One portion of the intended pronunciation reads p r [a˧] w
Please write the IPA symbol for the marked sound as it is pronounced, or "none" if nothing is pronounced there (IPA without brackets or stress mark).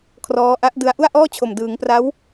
a˦˥